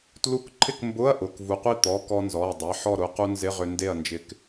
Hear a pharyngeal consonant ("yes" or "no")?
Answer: yes